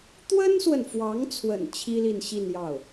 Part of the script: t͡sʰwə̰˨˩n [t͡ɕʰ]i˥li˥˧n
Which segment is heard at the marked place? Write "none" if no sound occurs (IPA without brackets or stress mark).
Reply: t͡ɕʰ